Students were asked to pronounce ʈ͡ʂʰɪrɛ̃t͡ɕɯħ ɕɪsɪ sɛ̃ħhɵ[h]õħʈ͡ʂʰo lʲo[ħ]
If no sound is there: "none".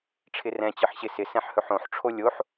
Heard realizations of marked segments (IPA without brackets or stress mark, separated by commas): ħ, ħ